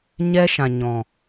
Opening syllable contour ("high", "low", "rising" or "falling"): high